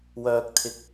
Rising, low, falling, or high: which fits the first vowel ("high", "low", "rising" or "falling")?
low